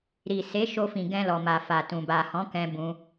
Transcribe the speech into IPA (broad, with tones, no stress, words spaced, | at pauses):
ɾi˨se˨˦ʃo˧fĩ˨ ɡɛ̃˧lɔ˨ ma˨fa˨tũ˨ ba˨hɔ̃˨˦kɛ̃˧ bũ˧